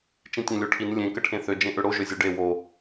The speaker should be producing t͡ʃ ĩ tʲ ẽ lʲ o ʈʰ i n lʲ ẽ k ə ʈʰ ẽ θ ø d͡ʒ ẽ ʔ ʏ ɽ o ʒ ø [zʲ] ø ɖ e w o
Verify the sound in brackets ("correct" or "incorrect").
correct